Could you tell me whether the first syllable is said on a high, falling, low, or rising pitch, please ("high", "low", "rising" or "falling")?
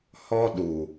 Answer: high